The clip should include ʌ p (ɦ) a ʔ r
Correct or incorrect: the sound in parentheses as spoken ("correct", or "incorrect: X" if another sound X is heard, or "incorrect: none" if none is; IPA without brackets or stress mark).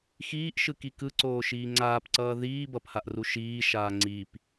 incorrect: h